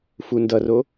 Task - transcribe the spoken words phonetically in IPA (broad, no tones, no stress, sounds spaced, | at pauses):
f u n d ʌ r o